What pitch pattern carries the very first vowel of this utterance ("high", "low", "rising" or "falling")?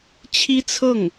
high